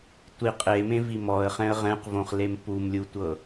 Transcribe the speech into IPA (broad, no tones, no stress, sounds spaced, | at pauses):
tʷ i qʼ e m ẽ v i m ɔ ə̯ χ ɛ̃ ə̯ ʁ ɛ̃ q v õ χ l e m p u m lʲ u tʷ ɤ